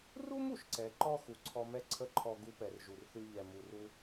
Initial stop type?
click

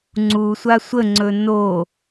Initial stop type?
click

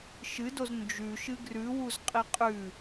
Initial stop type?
plain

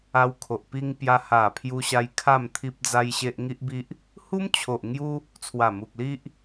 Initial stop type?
aspirated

